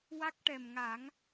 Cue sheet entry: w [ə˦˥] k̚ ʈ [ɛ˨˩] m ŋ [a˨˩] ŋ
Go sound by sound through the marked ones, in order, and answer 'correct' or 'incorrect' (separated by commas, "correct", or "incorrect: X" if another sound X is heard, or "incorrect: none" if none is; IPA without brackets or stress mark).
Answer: incorrect: a˦˥, correct, incorrect: a˨˩˦